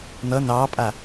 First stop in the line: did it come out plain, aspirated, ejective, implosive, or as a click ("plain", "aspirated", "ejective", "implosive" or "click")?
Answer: ejective